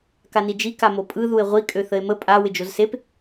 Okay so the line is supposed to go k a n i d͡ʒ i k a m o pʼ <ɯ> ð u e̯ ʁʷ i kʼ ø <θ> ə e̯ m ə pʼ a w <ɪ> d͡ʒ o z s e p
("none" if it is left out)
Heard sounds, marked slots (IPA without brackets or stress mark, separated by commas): ɯ, θ, ɪ